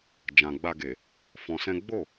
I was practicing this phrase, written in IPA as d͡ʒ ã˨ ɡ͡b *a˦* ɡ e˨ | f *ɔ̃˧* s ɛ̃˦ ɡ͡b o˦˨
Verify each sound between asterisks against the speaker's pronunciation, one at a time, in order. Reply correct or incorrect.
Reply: incorrect: a˧, correct

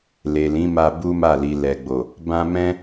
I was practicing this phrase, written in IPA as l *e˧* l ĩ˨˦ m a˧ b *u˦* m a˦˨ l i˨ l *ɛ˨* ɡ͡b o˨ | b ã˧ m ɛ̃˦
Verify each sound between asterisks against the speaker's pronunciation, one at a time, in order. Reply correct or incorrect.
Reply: incorrect: e˨, correct, correct

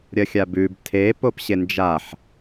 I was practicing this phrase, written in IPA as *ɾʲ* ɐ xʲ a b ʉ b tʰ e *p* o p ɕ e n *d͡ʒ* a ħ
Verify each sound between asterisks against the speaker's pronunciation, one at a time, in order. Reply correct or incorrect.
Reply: correct, correct, correct

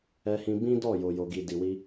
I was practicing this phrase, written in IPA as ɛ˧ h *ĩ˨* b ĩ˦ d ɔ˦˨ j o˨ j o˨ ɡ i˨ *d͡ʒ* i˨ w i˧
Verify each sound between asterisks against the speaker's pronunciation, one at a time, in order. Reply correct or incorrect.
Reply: incorrect: ĩ˧, incorrect: d

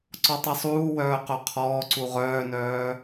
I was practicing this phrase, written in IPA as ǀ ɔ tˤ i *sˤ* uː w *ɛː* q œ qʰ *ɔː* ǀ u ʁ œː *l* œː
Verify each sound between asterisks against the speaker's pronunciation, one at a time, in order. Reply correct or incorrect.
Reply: correct, incorrect: œː, correct, incorrect: n

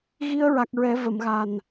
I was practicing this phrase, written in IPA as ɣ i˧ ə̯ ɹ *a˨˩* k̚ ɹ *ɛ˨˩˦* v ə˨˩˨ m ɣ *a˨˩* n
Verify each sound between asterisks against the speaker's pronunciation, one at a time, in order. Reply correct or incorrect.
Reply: correct, correct, correct

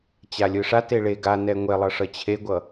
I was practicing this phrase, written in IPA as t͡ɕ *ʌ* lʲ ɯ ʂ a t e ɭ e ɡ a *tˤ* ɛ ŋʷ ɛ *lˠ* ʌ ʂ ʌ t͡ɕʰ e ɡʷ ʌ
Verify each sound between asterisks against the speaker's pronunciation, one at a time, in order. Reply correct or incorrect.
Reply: incorrect: a, incorrect: n, correct

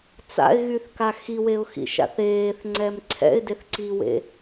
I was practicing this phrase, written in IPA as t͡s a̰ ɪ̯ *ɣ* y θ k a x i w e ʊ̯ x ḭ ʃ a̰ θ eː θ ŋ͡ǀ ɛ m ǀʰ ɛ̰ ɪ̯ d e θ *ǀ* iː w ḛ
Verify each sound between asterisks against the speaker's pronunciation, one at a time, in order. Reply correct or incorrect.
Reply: correct, correct

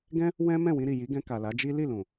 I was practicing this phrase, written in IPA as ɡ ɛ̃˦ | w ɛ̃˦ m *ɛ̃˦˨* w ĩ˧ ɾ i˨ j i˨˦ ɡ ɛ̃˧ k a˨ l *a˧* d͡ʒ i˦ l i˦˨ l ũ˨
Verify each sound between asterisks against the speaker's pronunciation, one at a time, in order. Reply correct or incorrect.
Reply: correct, incorrect: a˨˦

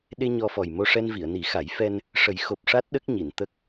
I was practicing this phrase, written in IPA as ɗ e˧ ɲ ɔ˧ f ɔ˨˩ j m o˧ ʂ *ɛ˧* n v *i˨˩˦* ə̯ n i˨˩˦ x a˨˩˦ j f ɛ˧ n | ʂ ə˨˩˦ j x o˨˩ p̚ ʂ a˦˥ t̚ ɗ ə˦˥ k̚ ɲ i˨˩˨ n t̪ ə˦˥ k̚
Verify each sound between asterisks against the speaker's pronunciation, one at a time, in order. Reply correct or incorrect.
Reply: correct, incorrect: i˨˩˨

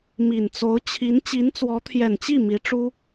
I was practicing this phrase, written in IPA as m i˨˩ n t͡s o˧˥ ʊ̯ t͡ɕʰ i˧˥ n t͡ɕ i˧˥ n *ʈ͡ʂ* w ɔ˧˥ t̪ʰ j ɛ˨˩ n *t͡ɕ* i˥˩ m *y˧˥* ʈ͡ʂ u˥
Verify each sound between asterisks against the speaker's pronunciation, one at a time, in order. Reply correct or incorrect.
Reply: incorrect: t͡s, correct, incorrect: i˧˥

